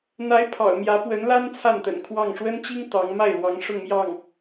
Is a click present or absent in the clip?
absent